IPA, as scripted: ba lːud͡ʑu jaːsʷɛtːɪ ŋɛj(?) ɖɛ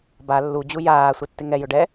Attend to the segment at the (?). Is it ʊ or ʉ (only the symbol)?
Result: ʊ